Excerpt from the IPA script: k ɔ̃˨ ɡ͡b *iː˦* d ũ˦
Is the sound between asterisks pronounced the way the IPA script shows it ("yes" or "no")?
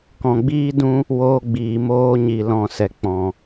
yes